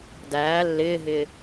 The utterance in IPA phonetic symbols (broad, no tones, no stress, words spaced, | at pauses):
dæː lːɪːɦɪː